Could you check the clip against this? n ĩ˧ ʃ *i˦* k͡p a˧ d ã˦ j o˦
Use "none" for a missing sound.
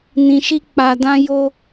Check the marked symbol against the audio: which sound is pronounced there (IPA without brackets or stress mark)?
i˦